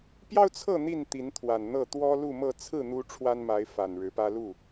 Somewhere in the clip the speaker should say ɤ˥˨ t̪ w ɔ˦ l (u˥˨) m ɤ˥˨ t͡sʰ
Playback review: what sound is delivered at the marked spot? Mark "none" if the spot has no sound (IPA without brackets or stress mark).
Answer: u˥˨